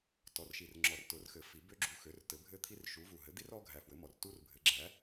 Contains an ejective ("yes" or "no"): no